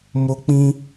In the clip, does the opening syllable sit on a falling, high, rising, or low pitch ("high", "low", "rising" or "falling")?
high